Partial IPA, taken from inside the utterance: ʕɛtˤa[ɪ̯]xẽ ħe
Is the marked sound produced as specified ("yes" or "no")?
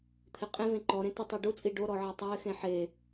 yes